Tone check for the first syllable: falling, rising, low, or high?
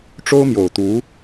high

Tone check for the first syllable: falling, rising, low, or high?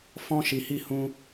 high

